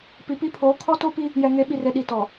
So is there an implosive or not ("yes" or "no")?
yes